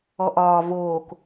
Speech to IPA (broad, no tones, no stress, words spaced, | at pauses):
ɔʔɒː voːk